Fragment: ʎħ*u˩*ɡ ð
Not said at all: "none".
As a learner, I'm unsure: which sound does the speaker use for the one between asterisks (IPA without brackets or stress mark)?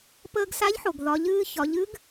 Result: o˩